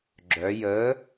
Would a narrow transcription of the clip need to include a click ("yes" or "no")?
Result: yes